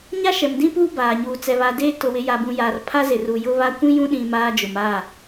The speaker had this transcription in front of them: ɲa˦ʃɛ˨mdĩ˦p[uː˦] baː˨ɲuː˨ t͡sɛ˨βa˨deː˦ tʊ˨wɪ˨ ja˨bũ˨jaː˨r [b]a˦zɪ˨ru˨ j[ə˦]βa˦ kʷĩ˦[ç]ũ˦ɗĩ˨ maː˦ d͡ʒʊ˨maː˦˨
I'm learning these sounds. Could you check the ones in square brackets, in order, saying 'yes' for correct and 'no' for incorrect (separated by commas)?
yes, no, no, no